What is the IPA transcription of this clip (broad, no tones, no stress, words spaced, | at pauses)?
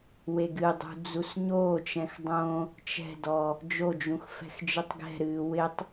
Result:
weɡɨdˤṳ d͡zusɲoːt͡ʃɛ̃x dˤõ | t͡ʃɛ̤dɔ | d͡ʒod͡ʒũx fɛ̤xd͡ʒɨtˤɡɛ̤ɾɨː wɪtˤ